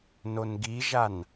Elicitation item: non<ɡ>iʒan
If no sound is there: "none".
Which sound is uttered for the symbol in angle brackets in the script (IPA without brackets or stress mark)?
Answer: ɡ